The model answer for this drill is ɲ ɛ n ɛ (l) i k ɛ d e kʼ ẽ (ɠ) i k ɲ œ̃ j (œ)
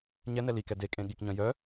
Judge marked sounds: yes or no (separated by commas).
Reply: yes, yes, yes